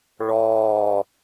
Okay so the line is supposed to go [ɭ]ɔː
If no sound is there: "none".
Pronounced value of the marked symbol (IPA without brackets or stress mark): ɭ